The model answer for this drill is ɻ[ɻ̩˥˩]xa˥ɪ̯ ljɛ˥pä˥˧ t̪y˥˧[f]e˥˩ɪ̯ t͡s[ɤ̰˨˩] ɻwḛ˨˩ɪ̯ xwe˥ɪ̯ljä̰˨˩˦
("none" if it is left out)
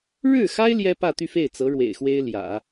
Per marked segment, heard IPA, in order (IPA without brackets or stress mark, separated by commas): ɻ̩˥˩, f, ɤ˧˥